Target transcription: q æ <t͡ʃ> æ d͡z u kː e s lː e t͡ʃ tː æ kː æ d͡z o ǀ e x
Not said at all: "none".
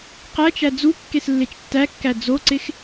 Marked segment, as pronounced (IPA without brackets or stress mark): t͡ʃ